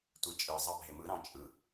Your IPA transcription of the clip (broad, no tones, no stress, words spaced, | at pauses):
tʷet͡ʃʼɯ zˤɑbʱemɯ ɾɑ̃t͡ʃʼɯ